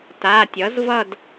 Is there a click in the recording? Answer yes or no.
no